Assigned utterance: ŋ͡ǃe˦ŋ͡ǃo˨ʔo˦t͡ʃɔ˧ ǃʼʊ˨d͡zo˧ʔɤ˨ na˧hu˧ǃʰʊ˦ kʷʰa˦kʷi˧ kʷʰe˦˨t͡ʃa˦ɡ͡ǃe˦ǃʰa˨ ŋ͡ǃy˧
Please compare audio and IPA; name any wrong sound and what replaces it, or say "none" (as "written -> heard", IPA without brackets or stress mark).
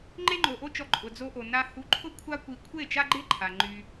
ɤ˨ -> o˨